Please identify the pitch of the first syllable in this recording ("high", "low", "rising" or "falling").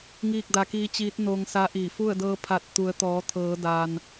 falling